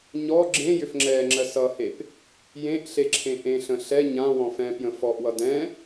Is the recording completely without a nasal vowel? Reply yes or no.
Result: no